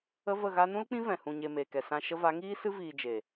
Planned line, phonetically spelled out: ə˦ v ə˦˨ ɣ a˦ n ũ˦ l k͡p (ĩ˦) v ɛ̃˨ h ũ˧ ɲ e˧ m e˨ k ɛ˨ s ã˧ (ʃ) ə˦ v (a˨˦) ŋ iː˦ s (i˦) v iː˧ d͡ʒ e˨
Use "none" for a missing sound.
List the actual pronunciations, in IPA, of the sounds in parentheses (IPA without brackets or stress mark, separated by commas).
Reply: ĩ˦, ʃ, a˨˦, ɨ˦